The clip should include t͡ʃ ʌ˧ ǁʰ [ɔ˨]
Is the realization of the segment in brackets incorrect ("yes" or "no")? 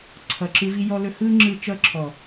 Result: no